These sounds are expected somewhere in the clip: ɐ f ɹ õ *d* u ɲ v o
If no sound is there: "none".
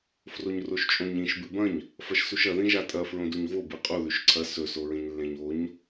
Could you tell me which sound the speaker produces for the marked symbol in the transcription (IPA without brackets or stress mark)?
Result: d